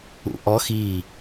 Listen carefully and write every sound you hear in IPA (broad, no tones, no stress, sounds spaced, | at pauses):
ṵ ʔ ɔ x i